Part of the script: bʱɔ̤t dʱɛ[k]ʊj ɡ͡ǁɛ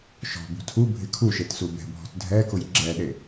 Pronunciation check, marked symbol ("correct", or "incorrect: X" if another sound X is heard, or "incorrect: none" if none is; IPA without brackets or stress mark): correct